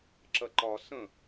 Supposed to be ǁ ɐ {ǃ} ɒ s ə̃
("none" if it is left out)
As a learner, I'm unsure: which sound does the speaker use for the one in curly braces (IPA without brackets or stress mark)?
ǃ